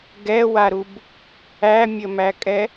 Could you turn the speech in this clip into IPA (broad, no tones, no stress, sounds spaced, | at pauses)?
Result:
ɡ ɛ w a ɾ u b | æ mʲ ə m æ kʼ ɛ